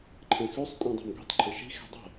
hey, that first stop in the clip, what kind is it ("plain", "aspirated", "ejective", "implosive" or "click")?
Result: click